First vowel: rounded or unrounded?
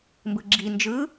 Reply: unrounded